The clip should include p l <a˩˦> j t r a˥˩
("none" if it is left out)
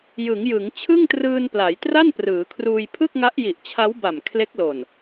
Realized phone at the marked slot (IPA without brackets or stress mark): a˩˦